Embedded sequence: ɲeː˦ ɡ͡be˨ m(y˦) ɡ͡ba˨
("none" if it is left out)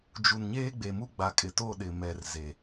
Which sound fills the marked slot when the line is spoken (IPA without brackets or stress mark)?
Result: u˦